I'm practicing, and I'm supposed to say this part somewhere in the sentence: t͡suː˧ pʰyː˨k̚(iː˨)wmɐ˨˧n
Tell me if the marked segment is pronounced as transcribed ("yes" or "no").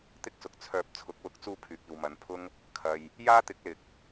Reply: yes